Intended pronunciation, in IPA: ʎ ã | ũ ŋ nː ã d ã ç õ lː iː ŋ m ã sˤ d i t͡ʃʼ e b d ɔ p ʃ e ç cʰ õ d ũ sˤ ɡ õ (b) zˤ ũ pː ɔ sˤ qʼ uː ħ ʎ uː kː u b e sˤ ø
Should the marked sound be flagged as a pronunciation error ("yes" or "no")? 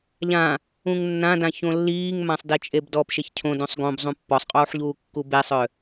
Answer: no